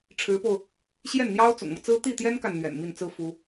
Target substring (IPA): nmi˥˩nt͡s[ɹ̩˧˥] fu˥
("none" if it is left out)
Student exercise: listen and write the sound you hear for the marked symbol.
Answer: ɹ̩˥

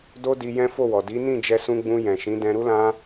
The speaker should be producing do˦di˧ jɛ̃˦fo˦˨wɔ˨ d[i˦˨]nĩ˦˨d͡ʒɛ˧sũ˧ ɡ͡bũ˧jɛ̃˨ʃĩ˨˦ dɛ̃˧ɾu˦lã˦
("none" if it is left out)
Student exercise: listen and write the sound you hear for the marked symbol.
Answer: i˨˦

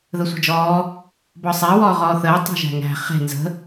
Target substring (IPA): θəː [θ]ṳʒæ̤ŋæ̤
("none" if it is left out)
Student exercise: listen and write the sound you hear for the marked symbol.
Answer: tˤ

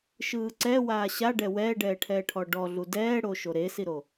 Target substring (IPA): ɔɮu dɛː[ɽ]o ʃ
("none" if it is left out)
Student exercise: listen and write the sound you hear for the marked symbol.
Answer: ɽ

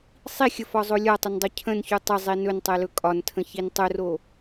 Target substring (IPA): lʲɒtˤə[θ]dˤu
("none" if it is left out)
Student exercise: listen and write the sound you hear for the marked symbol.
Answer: n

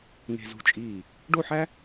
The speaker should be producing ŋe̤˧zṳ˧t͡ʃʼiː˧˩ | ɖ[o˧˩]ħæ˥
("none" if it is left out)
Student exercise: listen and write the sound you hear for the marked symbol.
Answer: o˥˧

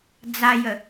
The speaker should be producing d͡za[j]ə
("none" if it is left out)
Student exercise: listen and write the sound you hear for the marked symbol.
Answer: j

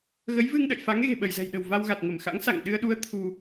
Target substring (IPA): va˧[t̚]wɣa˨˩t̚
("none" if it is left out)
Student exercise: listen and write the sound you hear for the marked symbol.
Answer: none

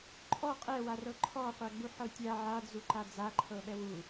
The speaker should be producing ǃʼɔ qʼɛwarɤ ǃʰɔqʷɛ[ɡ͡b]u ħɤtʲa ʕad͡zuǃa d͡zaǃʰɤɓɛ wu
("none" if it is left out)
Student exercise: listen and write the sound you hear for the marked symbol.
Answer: ɡ͡b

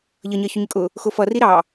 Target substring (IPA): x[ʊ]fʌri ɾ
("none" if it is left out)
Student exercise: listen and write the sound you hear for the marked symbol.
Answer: ʊ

